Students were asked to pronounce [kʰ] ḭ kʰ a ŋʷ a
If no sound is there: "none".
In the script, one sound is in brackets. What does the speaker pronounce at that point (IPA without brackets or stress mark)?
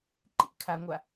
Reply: ǃ